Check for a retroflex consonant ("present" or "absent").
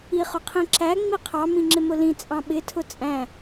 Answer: absent